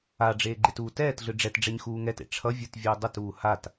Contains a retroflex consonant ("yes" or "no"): yes